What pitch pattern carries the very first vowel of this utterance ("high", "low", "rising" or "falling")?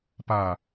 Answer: falling